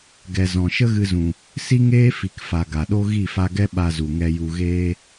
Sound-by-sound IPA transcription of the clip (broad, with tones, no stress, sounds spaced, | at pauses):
ɡ ɛ˨ z ɔ̃˨ ʃ ə˦ ɣ ɨ˧ z ũ˨ | s i˦ ŋ eː˦ f i˨ k f a˨ ɡ a˨ ɗ o˦ ɣ i˦˨ f a˧ ɡ ɛ˦ ɓ a˧ z u˨ ŋ ɛ˧ j u˧ ɣ eː˦